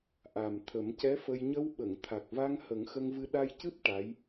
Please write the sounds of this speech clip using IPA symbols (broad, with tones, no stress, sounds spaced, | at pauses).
ʔ a˨˩ m t̪ʰ ə˨˩˦ m c ɛ˧˥ f ə˧ j ɲ ə˧ w ɓ ə˨˩˨ ŋ t̪ʰ a˨˩ k̚ v a˧ ŋ h ə˨˩˦ ŋ x ə˧ ŋ v ɨ˧ ɗ a˧ j c ɨ˦˥ p̚ ʈ a˧˥ j